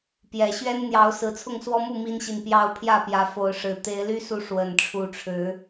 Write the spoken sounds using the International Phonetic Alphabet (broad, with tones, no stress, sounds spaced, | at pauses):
p j ɛ˨˩ ɕ ɥ ɛ˦ n n̪ j ɑ˨˦ ʊ̯ s ɹ̩˨˦ t͡sʰ ʊ˥˨ ŋ s w ɔ˦ m u˥˨ m i˦ n ɕ i˨ n p j ɑ˦ ʊ̯ pʰ j ä˥˨ p j ä˨˦ f o˨˦ ʊ̯ ʂ ɻ̩˨˩ t̪ e˨˦ ɪ̯ l y˦ s u˨˦ ʂ w ə˨˩ n ʈ͡ʂʰ u˨˦ ʈ͡ʂʰ ɻ̩˨˦